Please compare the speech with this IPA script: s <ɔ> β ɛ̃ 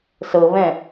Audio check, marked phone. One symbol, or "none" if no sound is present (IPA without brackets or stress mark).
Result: ɤ